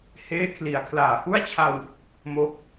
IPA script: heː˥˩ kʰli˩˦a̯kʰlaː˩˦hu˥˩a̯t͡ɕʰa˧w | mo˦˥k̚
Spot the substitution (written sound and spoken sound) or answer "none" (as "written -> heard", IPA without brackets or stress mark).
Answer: none